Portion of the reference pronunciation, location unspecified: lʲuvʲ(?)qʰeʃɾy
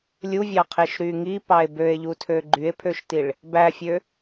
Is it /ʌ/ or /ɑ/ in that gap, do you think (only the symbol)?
ɑ